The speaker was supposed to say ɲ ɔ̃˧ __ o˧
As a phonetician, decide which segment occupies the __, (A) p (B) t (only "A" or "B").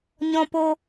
A